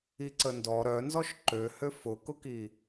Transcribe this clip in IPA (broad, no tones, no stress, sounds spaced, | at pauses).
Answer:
i ǀ ə n d ɔ ɾ œ n z ɔ ʃ ǃ ø h ø f ʊ k ʊ k i